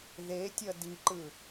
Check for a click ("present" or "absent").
present